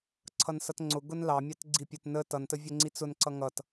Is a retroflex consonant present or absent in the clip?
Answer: absent